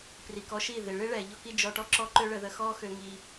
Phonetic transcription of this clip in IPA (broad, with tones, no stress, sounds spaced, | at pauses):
p r i˨ k ɔ˧ ʃ i˦˨ ð ɪ˨ ɭ ɪ˦ ɭ ɛ˨ ʎ ɔ˦ k i˦ d͡ʒ ɔ˧ ʈ ɔ˦ ǁ ɔ˦ ǃ ø˦ ɭ ə˧ ð ə˧ x ɔ˦ x ø˧ ŋ i˧